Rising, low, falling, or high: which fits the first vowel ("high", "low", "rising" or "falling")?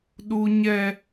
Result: high